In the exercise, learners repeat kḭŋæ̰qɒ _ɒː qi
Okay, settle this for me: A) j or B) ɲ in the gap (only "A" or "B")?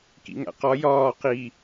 A